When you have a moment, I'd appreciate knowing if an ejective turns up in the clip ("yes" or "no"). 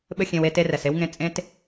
yes